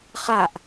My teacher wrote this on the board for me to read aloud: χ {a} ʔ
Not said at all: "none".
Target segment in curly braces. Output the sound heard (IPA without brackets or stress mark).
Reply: a